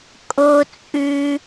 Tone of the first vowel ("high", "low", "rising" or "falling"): high